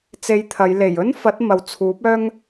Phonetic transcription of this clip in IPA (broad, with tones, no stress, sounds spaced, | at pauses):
t͡s e˧ j t̪ʰ ɐ˨˧ j l e˨˩ j ɵ˥ n f ɐ˨˥ t̚ m ɐ˨˥ w t͡sʰ uː˨˥ p̚ œː˥ ŋ